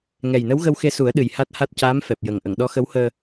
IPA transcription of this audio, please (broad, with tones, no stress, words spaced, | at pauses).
ŋɛ˨˩jnə˧˥wɣə˧w xe˧su˨˩˦ə̯ ɗɨ˨˩j ha˦˥t̚ha˦˥t̚ caː˧˥mfɛ˨˩p̚ jə˨˩ŋ ʔə˨˩˨ŋɗɔ˧˥xə˧˥whəː˧